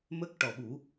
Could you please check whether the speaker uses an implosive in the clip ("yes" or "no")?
yes